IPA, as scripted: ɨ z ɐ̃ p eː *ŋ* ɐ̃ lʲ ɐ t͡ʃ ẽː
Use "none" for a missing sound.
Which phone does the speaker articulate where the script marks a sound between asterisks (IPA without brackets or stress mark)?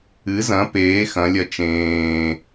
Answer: x